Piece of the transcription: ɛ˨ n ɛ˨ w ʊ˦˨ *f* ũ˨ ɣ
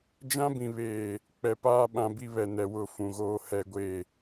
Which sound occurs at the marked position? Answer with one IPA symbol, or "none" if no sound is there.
f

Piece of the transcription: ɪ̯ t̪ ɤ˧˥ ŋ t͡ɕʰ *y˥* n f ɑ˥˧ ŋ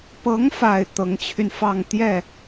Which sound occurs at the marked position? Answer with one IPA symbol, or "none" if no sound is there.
y˧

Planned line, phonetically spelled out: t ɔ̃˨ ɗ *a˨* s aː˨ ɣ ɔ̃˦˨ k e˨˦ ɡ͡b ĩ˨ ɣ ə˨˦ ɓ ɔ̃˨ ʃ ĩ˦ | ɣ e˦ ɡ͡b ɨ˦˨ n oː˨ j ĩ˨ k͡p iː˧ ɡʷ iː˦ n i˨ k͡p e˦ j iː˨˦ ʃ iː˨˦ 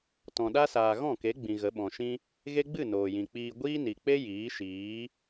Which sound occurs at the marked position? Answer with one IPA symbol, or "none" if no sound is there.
a˦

